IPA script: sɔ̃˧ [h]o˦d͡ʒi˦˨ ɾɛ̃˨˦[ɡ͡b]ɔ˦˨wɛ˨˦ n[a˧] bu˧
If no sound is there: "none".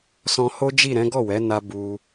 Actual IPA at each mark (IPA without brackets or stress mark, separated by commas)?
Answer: h, ɡ, a˧